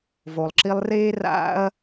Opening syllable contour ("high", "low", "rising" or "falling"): low